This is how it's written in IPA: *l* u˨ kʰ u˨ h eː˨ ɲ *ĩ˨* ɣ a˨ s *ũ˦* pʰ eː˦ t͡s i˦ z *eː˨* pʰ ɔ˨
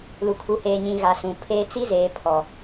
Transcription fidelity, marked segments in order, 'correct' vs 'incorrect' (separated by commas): correct, correct, incorrect, correct